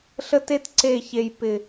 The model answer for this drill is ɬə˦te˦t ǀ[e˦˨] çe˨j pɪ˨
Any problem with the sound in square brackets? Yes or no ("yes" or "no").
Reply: no